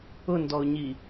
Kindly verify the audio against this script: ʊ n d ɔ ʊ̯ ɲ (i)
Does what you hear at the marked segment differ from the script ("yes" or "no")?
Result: no